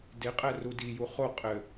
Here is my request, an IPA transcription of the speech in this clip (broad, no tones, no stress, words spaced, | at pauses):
deqʼɛ rudiju χo qʼɘ